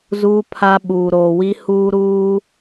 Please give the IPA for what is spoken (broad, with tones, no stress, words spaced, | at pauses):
zuː˦pʰa˦ ɓuː˨ɾoː˨wi˦ huː˦ ɾuː˦